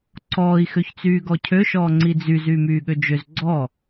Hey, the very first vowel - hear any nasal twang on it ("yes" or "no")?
no